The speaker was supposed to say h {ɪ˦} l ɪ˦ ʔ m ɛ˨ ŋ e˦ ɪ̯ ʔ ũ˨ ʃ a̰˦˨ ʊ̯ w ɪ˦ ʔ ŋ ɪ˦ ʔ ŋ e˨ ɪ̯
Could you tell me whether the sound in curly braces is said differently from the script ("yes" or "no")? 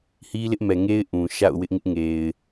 yes